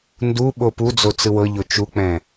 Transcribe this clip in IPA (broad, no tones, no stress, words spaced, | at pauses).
ndu ɓopud͡zo t͡sɯwɤʎo t͡ʃuk͡pɛ̃